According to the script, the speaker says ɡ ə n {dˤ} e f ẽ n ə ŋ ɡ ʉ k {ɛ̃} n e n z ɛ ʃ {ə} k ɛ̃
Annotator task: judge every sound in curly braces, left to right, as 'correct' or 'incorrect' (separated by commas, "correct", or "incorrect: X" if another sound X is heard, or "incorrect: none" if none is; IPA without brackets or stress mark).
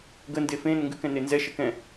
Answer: incorrect: d, correct, correct